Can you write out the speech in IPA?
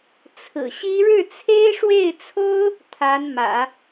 t͡sʰ ɹ̩˨˩ ɕ i˥ ɻ ɻ̩˥˩ t͡sʰ e˥ ɪ̯ ʂ w e˥˩ ɪ̯ t͡sʰ o˥ ʊ̯ | t̪ʰ a˧˥ n m ä̰˨˩˦

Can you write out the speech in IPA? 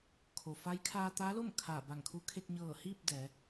kʰ o˩ f a˧˥ j kʰ aː˧ t̪ a˧˥ l o˥˨ m kʰ aː˧˩ b a˧˩ ŋ kʰ u˧˥ kʰ e˧ k̚ ɲ ɤː˧˩ h iː˥˨ p̚ d ɛː˩˧

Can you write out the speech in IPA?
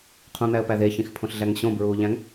qʰ ũ n̪ æ ə̯ p æ ð e ç ĩ x pʰ õ ɬ ɮ æ ŋ ɕ õ b ɹ uː ʎ æ̃ ŋ

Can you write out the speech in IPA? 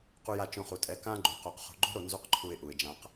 q u˧ j a˧ t͡ʃ õ˧ χ u˨ tʼ ɛ˨˦ k ã˦ ɡ͡ǃ u˨ q o˨ q χ o̤˨ ɡ͡ǃ o̤˦ ɾ o˧ n z u˦ q ǃʰ u˧ ɪ̯ ʔ u˨ ɪ̯ d͡ʒ ã˧ q

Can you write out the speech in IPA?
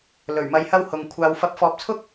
l ɵ˨˩ ɥ m ɐ˧ j h ɐ˥ w h ʊ˨˧ ŋ kʷʰ aː˨ w f ɐ˨˥ p̚ f ɔː˨˥ p̚ t͡sʰ ʊ˥ k̚

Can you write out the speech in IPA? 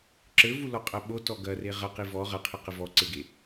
ǁ ɘ v u l ɔ qʼ ɐ ɓ o t ɔ ɡ ɐ r e ʁ ɐ q i v ɔ ʁ ɐ qʰ e q ɘ v ɔ ǀ e ɡ e

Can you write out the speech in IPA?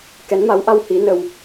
k ɛ˨˦ n m a˨˦ w ʔ a˧ w h i˨˦ n ə˧ w

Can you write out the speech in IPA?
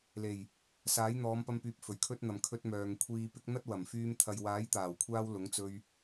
l e˨˩ j | s aː˨˥ j n̪ ɔː˨˧ m p ɐ˧ m p yː˨ p̚ f ɵ˨˩ ɥ kʰ ɵ˥ t̚ n̪ ɐ˨ m kʰ ɵ˧ t̚ m œː˨ ŋ kʷʰ iː˧ p ɪ˥ k̚ n̪ ɐ˥ t̚ w ɐ˨˩ m f yː˧ m t̪ʰ ɐ˨ j w aː˨˥ j t̪ aː˨˩ w kʷʰ aː˧ w l ʊ˨˥ ŋ t͡s ɵ˧ ɥ

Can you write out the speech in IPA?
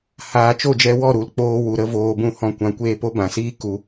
h aː˨ t͡ʃ o˦˨ d͡ʒ ɛ˧ w ɔ˦˨ ɾ u˨˦ l k͡p oː˧ w u˨ ɾ ə˦ v oː˧ b ũ˦ h ɔ̃˦˨ kʷ ã˧ kʷ eː˦ p o˦ b ã˨ s iː˦ k u˧

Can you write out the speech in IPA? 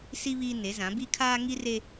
s i˦ β iː˦ n e˨˦ z ã˨˦ b i˦ kʰ aː˦ ŋ i˦ r e˦

